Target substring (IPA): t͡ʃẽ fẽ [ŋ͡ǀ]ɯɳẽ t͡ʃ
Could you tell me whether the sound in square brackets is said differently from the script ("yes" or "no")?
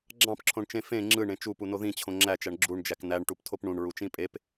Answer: yes